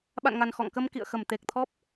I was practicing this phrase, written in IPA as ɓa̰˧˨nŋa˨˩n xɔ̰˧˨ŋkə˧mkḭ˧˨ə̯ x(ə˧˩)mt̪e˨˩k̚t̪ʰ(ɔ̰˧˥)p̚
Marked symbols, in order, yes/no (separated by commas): yes, no